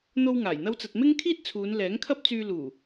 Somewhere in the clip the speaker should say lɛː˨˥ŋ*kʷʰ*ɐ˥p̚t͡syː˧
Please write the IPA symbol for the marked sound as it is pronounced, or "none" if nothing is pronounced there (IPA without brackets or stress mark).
kʰ